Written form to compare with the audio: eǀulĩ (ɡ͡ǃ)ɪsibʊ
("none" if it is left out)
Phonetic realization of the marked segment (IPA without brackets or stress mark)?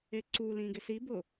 ɡ